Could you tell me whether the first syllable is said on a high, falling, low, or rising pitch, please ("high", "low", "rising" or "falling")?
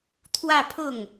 falling